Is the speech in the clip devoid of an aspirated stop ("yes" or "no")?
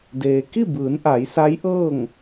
yes